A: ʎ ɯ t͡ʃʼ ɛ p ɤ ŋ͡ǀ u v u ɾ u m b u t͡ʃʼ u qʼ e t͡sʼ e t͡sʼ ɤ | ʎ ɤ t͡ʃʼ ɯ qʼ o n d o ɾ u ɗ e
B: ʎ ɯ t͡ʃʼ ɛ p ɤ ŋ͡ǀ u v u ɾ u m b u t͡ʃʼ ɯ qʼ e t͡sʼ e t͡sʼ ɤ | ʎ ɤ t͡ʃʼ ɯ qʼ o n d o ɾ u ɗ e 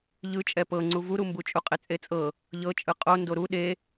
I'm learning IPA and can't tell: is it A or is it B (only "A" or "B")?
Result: A